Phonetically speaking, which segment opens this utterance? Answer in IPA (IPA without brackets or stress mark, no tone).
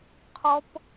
qʰ